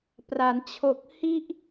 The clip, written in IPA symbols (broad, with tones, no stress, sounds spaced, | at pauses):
p r a˩˦ n t͡ɕʰ o˨˩ k̚ h i˥˩ ʔ